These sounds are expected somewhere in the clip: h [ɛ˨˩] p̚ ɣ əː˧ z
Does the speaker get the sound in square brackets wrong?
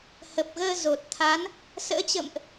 yes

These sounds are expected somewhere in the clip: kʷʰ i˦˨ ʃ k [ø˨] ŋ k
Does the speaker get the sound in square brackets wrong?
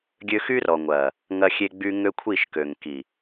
no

